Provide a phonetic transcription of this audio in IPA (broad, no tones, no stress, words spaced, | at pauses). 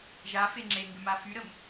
ʒa feŋ͡ǁeŋɡʏ mafyɾəm